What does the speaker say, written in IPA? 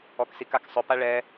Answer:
ɔ k s i k a k sˤ ʊ p a ɭ ɛ

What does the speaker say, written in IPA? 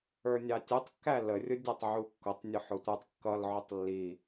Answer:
ə˞ nʲ ɑ tʲ u tˤ kː æ l ə rʲ ʊ dʲ æ tˤ ʕ u kː ʊ tˤ nʲ ʊ ħ ʊ tʷ ə˞ tˤ kː ʌ l ʕ ʊ tˤ lː i

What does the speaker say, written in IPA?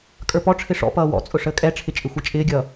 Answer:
kʼ ə˞ p ɔ ʈ͡ʂʰ ɪ ʂ ɔ̰ p ʌː w ɔ̰ t͡sʼ ʊ ʂ əː kʼ ɛ ʈ͡ʂʰ ɪ t͡ʃʼ ɪ xʷ i t͡ʃʼ ɪː ɡʲ ʌː

